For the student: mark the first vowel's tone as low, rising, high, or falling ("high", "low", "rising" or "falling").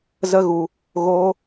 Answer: high